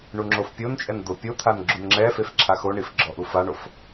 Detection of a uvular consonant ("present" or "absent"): absent